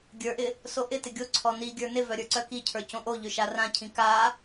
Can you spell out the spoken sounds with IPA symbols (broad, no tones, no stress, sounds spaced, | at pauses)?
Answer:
ɡʲ ə˞ ʔ ɪ | s o ʔ ɪ t ɪ ɡʲ o ǀʰ ɔ n i ɡʲ ə˞ n ɪ v œ ɾʲ ə˞ ǀ œ k i cʰ ə˞ c õ ʔ o ʎ ø ʃ a r ã cʰ ĩ k a